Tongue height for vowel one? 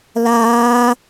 low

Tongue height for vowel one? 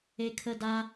mid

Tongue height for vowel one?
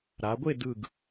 low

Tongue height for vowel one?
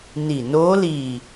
high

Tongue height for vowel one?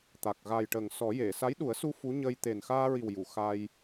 low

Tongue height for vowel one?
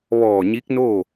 mid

